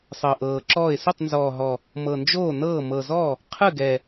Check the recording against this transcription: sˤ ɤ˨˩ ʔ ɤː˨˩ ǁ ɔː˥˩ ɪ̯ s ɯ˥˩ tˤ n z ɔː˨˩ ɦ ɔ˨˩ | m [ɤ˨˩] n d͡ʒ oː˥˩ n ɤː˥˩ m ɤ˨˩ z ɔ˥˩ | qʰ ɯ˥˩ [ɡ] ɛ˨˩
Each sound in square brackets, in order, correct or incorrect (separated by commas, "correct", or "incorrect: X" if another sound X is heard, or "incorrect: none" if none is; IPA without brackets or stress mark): correct, correct